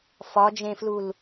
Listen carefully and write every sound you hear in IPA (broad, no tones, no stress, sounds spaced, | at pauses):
f ɒ d͡ʒ ẽ f l u l